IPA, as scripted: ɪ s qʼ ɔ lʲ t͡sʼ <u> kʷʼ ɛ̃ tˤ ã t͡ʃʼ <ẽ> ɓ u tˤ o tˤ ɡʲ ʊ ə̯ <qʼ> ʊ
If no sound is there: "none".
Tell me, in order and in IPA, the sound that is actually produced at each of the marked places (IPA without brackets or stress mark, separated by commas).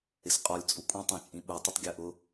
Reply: u, ĩ, ʔ